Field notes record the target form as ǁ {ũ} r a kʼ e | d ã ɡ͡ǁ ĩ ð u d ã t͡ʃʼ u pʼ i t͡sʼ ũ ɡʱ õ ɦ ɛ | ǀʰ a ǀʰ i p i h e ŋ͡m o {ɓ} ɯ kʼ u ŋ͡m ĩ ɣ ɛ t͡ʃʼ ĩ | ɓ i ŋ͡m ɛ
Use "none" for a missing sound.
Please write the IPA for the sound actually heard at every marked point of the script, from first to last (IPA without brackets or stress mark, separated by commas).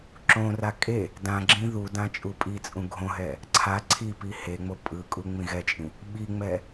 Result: õ, pʼ